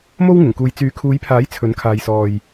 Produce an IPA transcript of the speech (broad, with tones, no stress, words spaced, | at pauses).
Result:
mo˥wŋɪ˨˩ŋkuː˨j t͡syː˨˥kʰuː˨˧jpʰaː˨˥j t͡sʰɵ˨˥n kʰaː˨jsɔː˨j